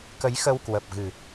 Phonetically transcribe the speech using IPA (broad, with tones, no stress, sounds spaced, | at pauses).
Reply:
k ə˨˦ j x ə˧ w k w ə˨˩ p̚ ɣ ɨ˨˩